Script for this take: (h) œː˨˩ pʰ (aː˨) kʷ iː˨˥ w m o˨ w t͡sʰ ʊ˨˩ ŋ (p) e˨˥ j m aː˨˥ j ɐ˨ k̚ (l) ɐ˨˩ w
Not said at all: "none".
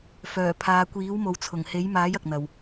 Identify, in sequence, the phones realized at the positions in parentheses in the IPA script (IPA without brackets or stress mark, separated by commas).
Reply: f, aː˨, h, n̪